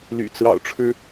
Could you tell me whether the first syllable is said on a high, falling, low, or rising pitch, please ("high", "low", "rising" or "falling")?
low